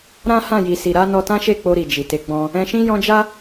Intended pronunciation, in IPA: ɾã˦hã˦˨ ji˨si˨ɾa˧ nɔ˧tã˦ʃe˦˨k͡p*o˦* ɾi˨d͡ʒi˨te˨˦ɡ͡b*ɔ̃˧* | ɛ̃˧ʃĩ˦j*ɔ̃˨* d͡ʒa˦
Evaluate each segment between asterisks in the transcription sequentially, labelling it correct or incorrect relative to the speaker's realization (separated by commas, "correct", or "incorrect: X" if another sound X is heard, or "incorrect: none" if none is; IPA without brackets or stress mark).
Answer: incorrect: o˧, correct, incorrect: ɔ̃˦